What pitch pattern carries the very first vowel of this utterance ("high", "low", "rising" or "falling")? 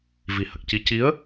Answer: low